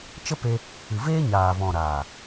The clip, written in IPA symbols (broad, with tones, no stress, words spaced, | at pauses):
t͡ʃə˦pe˧ | ɨ˨veː˦ɲaː˨vɔ̃˨ ɾaː˨